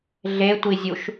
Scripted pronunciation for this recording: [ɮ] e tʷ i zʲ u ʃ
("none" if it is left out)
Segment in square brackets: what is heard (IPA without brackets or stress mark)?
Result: ɮ